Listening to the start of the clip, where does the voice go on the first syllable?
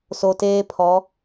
low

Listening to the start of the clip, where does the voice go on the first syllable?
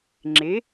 rising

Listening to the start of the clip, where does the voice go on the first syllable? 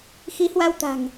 rising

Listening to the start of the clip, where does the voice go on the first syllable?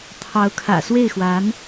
rising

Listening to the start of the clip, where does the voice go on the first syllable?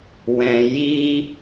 low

